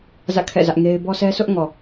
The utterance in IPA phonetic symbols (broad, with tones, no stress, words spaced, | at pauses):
zä̰˦˨kʰɛ̰˦˨zä˦ʔŋe˦ɪ̯ bɔ˦sʰɛ˦sʰʊ˦ʔ ŋɔ˨